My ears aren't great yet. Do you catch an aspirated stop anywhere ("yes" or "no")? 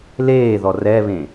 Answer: no